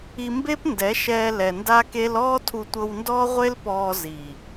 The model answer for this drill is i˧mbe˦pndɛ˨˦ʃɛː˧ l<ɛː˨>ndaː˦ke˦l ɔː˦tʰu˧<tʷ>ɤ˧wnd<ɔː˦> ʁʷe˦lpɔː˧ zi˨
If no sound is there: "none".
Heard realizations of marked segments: ɛ˨, tʷ, ɔː˦

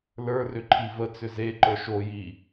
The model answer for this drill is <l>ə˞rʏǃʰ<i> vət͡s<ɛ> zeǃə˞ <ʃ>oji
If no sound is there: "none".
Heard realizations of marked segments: l, i, ʏ, ʃ

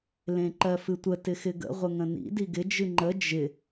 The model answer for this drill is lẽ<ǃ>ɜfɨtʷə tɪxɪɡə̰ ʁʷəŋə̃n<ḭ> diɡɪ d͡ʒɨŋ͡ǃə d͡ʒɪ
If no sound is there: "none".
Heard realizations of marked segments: ǃ, ḭ

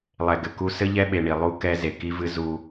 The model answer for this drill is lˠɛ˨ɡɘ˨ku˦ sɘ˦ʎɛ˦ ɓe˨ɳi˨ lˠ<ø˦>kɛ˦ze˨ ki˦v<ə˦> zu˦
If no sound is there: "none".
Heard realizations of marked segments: u˦, ɨ˦

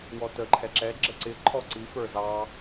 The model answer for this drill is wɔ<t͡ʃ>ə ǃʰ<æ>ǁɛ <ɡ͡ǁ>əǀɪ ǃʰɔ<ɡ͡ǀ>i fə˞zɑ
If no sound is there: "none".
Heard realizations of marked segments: t, ɛ, ɡ͡ǁ, ǀ

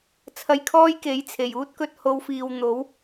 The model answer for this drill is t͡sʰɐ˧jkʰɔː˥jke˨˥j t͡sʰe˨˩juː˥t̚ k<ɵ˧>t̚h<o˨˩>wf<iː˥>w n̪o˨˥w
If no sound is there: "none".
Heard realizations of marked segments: ɵ˧, o˨˧, iː˨

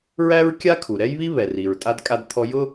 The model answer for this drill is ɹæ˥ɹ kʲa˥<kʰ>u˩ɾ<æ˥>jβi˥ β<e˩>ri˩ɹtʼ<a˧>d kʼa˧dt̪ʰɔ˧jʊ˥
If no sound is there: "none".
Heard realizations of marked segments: kʰ, ɛ˥, ɛ˩, a˧

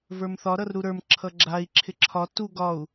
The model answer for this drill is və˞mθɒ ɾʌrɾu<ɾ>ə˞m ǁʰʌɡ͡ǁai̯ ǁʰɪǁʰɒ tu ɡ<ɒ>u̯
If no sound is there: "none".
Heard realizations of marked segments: ɾ, ɒ

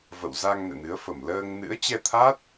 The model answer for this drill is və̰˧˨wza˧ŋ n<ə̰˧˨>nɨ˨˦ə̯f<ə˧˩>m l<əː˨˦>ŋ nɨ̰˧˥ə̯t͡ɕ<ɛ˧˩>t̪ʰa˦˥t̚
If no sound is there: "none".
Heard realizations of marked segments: ɛ̰˧˨, ə˧˩, əː˧, ɛ˧

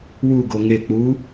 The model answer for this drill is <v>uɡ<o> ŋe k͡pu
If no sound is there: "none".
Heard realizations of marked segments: w, o

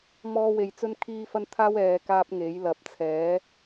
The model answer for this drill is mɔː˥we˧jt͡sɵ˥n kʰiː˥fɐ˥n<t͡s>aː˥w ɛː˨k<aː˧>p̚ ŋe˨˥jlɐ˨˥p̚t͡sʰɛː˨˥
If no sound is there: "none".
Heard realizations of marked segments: t̪ʰ, aː˧

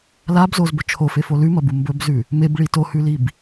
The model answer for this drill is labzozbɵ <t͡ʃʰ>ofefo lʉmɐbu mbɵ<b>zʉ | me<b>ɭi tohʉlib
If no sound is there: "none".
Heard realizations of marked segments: t͡ʃʰ, b, b

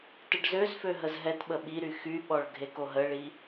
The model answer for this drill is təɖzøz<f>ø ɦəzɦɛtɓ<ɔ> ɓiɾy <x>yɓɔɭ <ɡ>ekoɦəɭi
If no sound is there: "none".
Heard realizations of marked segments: f, ə, x, ɡʱ

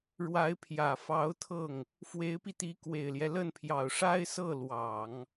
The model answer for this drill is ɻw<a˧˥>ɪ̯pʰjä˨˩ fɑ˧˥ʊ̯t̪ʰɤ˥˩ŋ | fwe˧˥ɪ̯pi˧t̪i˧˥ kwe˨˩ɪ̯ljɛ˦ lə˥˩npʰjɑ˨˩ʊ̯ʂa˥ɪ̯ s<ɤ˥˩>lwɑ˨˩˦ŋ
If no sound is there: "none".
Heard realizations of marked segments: a˧˥, ɤ˥˩

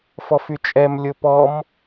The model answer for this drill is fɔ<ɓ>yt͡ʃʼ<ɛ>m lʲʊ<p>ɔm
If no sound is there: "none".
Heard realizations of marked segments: f, ɛ, p

